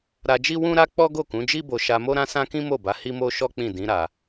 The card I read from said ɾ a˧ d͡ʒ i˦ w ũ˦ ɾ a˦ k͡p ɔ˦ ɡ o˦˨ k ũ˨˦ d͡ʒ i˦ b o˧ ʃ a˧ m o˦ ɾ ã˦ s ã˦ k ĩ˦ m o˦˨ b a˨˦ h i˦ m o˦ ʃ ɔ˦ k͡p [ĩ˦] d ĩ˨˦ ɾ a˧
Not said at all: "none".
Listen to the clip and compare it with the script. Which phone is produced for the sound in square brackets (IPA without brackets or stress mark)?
ĩ˦˨